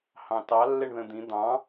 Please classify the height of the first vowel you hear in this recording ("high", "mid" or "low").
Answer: low